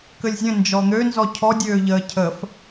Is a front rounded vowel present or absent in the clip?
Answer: present